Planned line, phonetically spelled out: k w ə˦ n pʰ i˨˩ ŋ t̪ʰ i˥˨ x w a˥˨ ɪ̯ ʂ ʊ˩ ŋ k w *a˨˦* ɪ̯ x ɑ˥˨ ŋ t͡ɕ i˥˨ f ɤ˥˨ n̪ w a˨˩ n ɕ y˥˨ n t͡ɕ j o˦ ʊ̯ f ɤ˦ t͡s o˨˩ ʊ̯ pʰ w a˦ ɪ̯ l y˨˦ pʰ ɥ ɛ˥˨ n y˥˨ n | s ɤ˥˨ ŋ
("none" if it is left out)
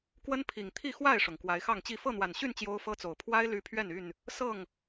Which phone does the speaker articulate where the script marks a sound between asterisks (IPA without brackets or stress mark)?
a˨˦